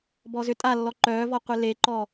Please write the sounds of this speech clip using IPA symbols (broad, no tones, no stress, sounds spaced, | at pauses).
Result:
b ɔ z ʏ tʼ a lː ɔ ǃ œː v ɔ qʷ e l e ǃ ɔ